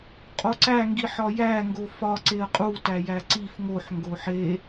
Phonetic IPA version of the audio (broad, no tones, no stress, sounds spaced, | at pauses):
qʼ o ǀ æ ŋ ɡ i ħ ɒ j æ ŋ ɡ o f ɒ ǀ e ə̯ qʼ u t æ j æ ǀ i f ŋ o ħ ŋ ɡ o ħ e